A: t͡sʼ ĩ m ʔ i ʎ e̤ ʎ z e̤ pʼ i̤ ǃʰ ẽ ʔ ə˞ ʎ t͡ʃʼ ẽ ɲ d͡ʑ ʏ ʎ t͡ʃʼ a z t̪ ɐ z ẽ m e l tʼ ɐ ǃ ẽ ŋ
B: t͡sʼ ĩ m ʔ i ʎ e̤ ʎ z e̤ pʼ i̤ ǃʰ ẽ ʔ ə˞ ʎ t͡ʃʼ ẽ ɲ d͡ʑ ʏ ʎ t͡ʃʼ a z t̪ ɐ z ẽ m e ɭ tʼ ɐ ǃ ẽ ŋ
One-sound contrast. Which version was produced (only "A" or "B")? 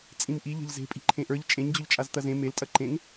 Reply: A